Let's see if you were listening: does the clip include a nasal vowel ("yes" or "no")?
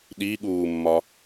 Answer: no